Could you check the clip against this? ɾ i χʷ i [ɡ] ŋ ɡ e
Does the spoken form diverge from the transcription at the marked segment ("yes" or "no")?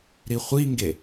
yes